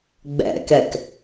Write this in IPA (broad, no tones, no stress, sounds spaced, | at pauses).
ɡ͡b ɛ̰ k ɛ k